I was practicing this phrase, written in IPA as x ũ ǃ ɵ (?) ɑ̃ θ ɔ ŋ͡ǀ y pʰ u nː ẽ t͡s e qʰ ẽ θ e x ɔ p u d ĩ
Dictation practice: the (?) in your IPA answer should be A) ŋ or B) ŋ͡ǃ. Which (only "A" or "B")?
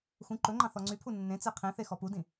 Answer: B